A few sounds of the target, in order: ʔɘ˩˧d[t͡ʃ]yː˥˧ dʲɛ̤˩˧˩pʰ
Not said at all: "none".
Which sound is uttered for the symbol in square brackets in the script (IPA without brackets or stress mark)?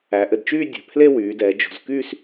t͡ʃ